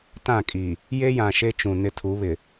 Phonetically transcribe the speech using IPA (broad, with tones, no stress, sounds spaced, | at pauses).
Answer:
t ã˦˨ kʼ iː˨ | j e˦ j ã˨ ʃ e˦ t͡ʃ ũ˨ n ɪ˦ tʰ u˨˦ β ɪ˨